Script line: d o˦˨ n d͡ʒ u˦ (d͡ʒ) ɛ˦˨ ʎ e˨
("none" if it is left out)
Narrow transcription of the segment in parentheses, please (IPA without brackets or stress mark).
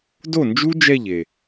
d͡ʒ